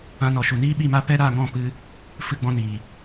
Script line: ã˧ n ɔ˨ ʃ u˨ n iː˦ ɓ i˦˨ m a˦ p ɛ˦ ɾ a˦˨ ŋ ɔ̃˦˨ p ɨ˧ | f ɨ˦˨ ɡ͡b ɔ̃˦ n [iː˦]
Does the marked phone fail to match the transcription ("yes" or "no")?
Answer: yes